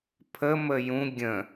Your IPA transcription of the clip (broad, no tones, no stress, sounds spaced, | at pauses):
pʰ ə m ə j ũ ɡʲ ə̃